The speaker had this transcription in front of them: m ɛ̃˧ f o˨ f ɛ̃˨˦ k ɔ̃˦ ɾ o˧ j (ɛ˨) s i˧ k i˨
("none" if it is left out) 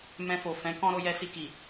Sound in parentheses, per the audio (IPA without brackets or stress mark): ɛ˧